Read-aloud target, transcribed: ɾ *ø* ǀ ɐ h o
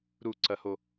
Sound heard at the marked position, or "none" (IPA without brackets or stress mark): u